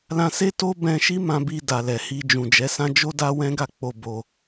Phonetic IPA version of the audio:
l ã˧ s e˦ t o˦ b ɛ̃˧ ʃ i˦ m ã˧ b i˧ d a˨ l ɛ˨ h i˧ d͡ʒ ũ˨ d͡ʒ ɛ˨˦ s ã˦ d͡ʒ o˦ d a˦ w ɛ̃˦ ɡ a˦˨ k͡p o˧ b o˧

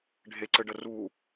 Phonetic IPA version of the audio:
ɖʱ e ǀ ɘ ɖ ə r u

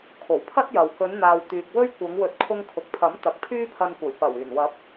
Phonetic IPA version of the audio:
kʰ o˨˩ w pʰ ɐ˥ t̚ j ɐ˨ w k ɵ˨˧ n n̪ aː˨ w t̪ yː˨ k̚ w ɵ˥ ɥ kʷ ɐ˨˧ ŋ w ɵ˨˥ t̚ kʰ ʊ˧ ŋ kʰ ʊ˨ k̚ pʰ ɐ˨˥ m t̪ ɐ˨ k̚ pʰ yː˥ pʰ ɐ˧ n kʷ ɐ˨˩ j p ɐ˨˩ w yː˨˩ n w ɐ˨˥ p̚

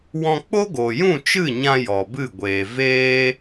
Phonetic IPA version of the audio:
w ɔ̃˧ k͡p o˦ ɡ o˨ j ũ˦˨ t͡ʃ ɨ˦˨ ɲ ã˧ j ɔ˨ b ɨ˦˨ ɡʷ eː˨ v eː˦

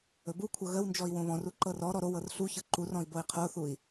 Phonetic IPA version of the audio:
ɵ b u kʷʰ ɤ ɣ ə w n d͡ʒ ɔ i̯ w õ β ɔ̃ r u ǃ ɤ r ɔ ɾ ɔ ɾ o w ɤ r ɬ u ç ɤ ǃ u r ɔ̃ i̯ b o i̯ qʰ o θ u i̯

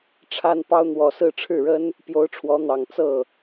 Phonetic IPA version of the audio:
ʈ͡ʂʰ a˥ n p ɑ˥ ʊ̯ n̪ w ɔ˨˩ s ɹ̩˥˧ ʈ͡ʂʰ ɻ̩˥˩ ɻ ə˥ n | p j o˧˥ ʊ̯ ʈ͡ʂʰ w ɔ˧˥ n̪ ɑ˨˩ ŋ t͡s ɤ˥˩

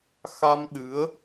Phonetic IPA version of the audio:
x a˧ m ɗ ɨ˨˦ ə̯

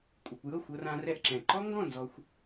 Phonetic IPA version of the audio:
kʷʼ ɯ˩ kʷ j ɤ˥˩ xʷ ɤ˧ r ã˧ r ɛ˥˩ ʔ ǁ ɛ̃˩ ǃ ɔ˥ ŋ ɡ ɔ̃˥˩ n z ɔ˧ xʷ

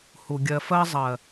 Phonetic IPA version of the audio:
h u˨ ɡʲ ɜ˧ f ɜ˦ zˤ ɜ˨

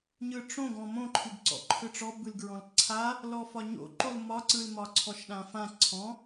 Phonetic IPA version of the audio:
ɲ ɯ ʈ͡ʂ õ ɡ ɔ̃ m õ ǃʰ ɨ ɡ ǀ ɔ̰ ǃʰ ɯ ʈ͡ʂ ɔ b ɯ l ɡ ɹ ɔ̃ l ǀʰ a | l ɔ f ɒ ɲ o̰ ǃ o l m ɒ ǀ ɯ l m ɒ ǀʰ ɔ ʃ ɗ ã f ã ǀʰ ɔ̃

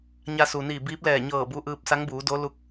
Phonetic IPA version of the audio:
ɲ a˧ s u˩ n iː˧˩ b iː˧˥ p̚ l ɛː˧˩ ɲ ɤː˧˩ b u˧ ʔ ɯː˧ p̚ s a˧˥ ŋ b uː˩˧ d o˧˥ l u˧˥ k̚

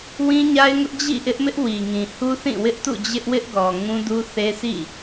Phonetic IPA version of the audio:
w ĩ˦ ɲ a˦ ɪ̯ ŋ ʊ˦ ʔ d͡ʑ ḭ˦˨ ʔ ɪ˦ ʔ m ɪ˦ ʔ w i˨ ŋ ĩ˨ h u˦ θ ĩ˦˨ w ɪ˦ ʔ t ṵ˦˨ d͡ʑ ɪ˦ ʔ w ɪ˦ ʔ ɡ ɔ˨ ŋ ũ˦ d u˦ θ e˦ s ḭ˦˨

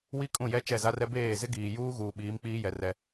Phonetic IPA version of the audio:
w i˦ kʼ ũ˦˨ j ɛ˦ t͡ʃ ɛ˦˨ z a˦ r ɛ˦ b eː˦˨ z ɪ˦ ɡ iː˨ j uː˦ ɣ uː˨ ɓ iː˨˦ m k͡p iː˦ j ɛ˨ r ɛ˦

